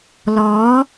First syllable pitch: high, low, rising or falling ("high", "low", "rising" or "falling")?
rising